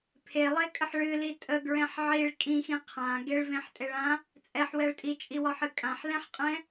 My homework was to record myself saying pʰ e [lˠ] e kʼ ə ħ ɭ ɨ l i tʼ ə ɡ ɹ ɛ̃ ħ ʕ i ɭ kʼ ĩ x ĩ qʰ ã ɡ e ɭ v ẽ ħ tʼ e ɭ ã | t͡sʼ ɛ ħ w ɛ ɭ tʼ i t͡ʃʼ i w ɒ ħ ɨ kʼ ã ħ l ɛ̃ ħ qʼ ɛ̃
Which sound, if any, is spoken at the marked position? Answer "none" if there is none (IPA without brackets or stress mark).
lˠ